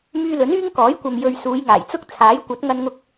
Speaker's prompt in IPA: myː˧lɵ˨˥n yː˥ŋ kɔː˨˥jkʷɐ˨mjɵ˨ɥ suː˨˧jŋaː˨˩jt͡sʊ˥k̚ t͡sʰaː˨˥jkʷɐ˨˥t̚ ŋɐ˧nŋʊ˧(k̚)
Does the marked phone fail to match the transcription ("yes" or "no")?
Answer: no